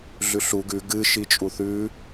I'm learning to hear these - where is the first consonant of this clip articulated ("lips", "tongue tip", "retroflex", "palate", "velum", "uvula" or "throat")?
tongue tip